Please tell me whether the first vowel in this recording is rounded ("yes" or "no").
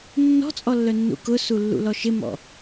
yes